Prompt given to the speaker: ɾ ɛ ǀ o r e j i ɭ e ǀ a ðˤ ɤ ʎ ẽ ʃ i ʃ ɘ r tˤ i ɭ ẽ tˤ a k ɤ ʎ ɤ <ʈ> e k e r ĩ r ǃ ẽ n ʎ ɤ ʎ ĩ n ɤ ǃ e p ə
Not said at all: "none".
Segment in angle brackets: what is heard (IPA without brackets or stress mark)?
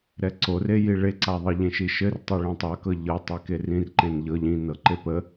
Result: tˤ